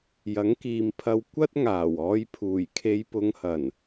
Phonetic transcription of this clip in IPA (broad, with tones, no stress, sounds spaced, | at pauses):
j ɐ˨˥ ŋ k iː˨˧ m pʰ ɐ˧ w kʷ ɐ˥ t̚ ŋ aː˨˩ w ɔː˨˧ j pʰ uː˨˩ j kʰ e˨˧ j p ʊ˨˧ ŋ h ɐ˨˩ n